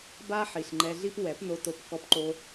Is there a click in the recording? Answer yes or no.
yes